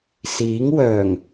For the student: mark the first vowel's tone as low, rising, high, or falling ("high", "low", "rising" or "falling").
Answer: rising